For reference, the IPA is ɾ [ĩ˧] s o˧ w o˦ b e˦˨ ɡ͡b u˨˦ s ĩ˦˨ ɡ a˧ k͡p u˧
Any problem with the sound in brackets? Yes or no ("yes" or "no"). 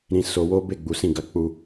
yes